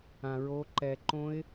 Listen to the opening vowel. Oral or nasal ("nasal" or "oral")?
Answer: nasal